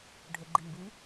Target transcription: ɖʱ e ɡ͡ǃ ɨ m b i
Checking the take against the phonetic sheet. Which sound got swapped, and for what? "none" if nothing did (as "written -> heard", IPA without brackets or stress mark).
ɨ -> i